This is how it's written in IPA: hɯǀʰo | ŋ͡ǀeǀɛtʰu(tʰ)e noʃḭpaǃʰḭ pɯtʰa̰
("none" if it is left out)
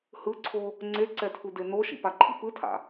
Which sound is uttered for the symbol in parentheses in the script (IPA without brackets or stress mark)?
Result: d